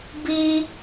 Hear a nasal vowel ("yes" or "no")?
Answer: no